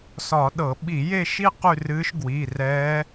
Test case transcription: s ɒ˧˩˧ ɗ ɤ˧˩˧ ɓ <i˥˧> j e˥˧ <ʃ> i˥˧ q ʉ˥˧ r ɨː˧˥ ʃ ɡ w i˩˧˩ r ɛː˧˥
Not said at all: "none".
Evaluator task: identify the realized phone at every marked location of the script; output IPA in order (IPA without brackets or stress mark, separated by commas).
i˧˩˧, ʃ